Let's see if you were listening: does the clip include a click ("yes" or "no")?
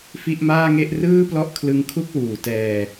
no